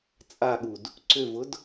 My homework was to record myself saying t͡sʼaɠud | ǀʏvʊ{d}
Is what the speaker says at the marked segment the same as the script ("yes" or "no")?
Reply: yes